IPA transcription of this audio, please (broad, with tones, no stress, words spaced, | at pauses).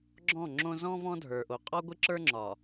ɡ͡ǁɔ̃˦˨ŋ͡ǁõ˦ zɔ̃˦ vɔ̃˦dʱə˞˨ʔo˨ qʼɒ˦ɡʷɪ˦ǁə˞˦ ŋ͡ǁɒ˨